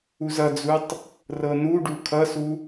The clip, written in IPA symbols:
u z ʌ d͡z u tˤ | r ɤ n u ɖ u kʰ ʌ s u

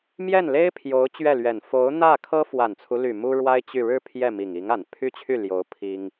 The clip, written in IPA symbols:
m j ɛ˥˩ n l e˥ ɪ̯ pʰ j o˧˥ ʊ̯ t͡ɕ ɥ ɛ˥˩ l ɥ ɛ˨˩ n f o˧˥ ʊ̯ n̪ ä˥˩ kʰ ɤ˥ f w a˨˩ n t͡sʰ u˦ l y˨˩ m u˥ ɻ w a˥ ɪ̯ t͡ɕ y˥˩ ɻ ɻ̩˥ pʰ j ɛ˥˩ m i˨˩ ŋ i˧˥ ŋ a˨˩ n pʰ y˥ t͡ɕʰ y˥˩ l j o˧˥ ʊ̯ pʰ i˥ ŋ

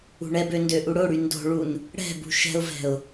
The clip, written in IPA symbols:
ṳ ɳ ɛ b ø n d ø ʔ u ɽ o ɽ y n d o̤ ɭ u n | ɽ ɛ̤ b ṳ ʃ ɛ̤ ʊ̯ v ɛ̤ ʊ̯

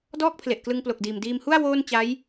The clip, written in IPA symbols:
d ɔː˥˩ k̚ pʰ l e˨˩ ʔ k l ɯ˧ ŋ p l o˨˩ k̚ d iː˨˩ m d iː˧ m h u˥˩ a̯ w oː˥˩ n t͡ɕ a˦˥ j

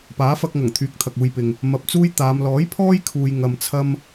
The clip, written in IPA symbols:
p aː˨˥ f ɐ˧ k̚ ŋ ɐ˨˩ ŋ t̪ʰ yː˨˥ k̚ t̪ʰ ɐ˨ k̚ uː˧ j p ɪ˨ ŋ | m ɐ˨ p̚ t͡s uː˥ j t̪ aː˨˧ m l ɔː˨˥ j pʰ ɔː˥ j kʰ uː˨ j ŋ ɐ˧ m t͡sʰ ɐ˥ m

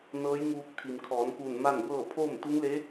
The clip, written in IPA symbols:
n ɤː˧˥ j ŋ uː˧ k̚ t̪ʰ i˩ m kʰ ɔː˩˧ n k uː˧˩ n m a˥˨ n b ɤː˥˨ pʰ oː˥˨ m t̪ u˧˥ ŋ l e˧˥

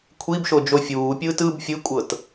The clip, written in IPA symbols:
kʷʰ i b ʃ o d͡ʒ o fʲ uː pʲ ɯː t ɯ b fʲ ɯ kʷʼ ɤ t

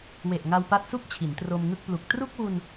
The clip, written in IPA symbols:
w e˨˩ ʔ ŋ a˧ w p a˦˥ t̚ s u˥˩ k̚ t͡ɕʰ i˩˦ n t r o˧ m ŋ ɯ˥˩ k̚ p l u˨˩ k̚ t r u˥˩ k̚ w u˧ n

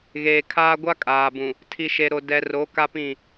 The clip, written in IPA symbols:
ɣ eː˨ kʰ aː˦ ɡʷ a˦ kʼ aː˨ b ũ˨ | tʰ i˨ ʃ e˨ ɾ o˨ d ɛ˨ r o˨˦ k a˦ p ĩ˦˨

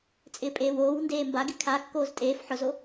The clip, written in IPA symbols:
t͡sʼ ɪː pʼ eː w oː w n d eː m b a ɡ ɪ kʰ a kː oː z tʼ eː f ħ ʊ z o

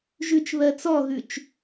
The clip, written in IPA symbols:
ʒ ʉ t͡ʃ β ɜ t͡s ɔ ɣ ʉ t͡ʃ

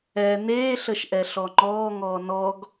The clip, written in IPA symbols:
ɛ n eː ɬ ə ʃ ʔ ɛ ɬ ɔ ŋ͡ǃ ɔː ŋ ɔː n ɔ ɡ

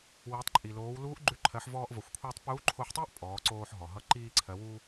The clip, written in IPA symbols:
w i˩˧ tˤ ǃʼ i˩ l oː˩˧ w l uː˧˥ ʔ ɡ͡ǃ ʉ˧ ǃʰ ɜ˩˧ ħ v ɔː˧ ʔ v ʌ˩˧ xʷ kʷʰ iː˧ tˤ p uː˧˥ ǃʰ o˧ ħ tˤ iː˥ ʔ pʼ ɔː˩˧ ǀ oː˧ ħ ɦ ɔ˩ ɦ ʌ˧ ǃ iː˧ ǀʰ ɜ˩˧ w u˧

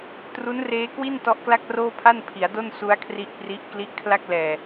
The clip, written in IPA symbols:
t r u˦˥ n r eː˦˥ k w i˥˩ n t ɔ˦˥ ʔ k l a˥˩ k̚ r oː˥˩ pʰ a˥˩ n pʰ i˩˦ a̯ d o˥˩ n s u˦˥ a̯ kʰ r i˦˥ ʔ p r i˦˥ ʔ k l i˦˥ ʔ kʰ l a˥˩ k̚ l ɛː˨˩

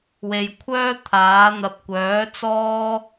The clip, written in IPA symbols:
w e˨ j kʷʰ œː˥ t̪ʰ aː˨˥ n̪ ɐ˧ p̚ kʷ œː˨˥ t͡s ɔː˥

